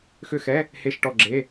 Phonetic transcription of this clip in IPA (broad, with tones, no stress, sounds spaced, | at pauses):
x ʏ˦˨ x ɛ˧˥˧ | h e˦˨ ʃ ʈ ɔ˦˨ ɡ͡ǁ e˧˥˧